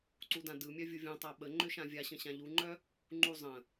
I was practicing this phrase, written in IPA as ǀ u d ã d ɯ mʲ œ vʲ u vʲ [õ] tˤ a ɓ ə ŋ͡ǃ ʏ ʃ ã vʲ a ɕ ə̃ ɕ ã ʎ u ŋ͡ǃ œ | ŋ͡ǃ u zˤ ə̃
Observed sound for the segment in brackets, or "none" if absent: õ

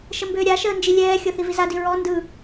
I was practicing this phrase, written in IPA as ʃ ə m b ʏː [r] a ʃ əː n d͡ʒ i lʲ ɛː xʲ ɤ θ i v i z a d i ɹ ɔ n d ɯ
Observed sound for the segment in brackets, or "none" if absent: ɾʲ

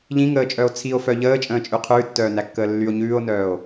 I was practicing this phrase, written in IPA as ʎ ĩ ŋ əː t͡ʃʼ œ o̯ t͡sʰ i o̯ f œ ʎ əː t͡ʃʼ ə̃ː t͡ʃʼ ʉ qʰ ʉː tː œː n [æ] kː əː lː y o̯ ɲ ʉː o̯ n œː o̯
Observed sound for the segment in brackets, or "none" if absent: æ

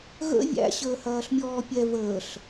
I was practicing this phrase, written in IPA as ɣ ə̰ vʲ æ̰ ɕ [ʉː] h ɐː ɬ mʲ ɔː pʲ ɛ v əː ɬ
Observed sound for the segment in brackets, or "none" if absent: əː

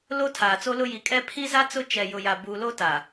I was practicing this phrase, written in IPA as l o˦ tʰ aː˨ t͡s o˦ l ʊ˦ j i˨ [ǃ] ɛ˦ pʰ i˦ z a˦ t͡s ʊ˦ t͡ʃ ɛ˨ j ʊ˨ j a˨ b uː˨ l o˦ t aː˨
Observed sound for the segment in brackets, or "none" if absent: kʼ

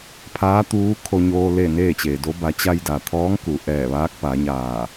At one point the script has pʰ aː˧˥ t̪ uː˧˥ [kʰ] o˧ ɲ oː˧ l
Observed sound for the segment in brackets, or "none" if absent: kʰ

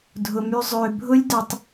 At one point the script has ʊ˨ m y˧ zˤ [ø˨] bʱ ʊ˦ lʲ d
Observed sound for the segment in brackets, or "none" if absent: ø˨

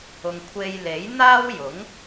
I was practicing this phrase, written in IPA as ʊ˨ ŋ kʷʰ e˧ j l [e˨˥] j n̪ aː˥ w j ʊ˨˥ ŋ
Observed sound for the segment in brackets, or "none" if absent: e˨˥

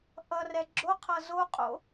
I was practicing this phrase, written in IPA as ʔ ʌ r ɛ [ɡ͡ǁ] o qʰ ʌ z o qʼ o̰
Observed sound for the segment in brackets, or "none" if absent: ɡ͡ǁ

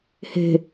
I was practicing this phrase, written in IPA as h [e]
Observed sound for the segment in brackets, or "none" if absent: e̤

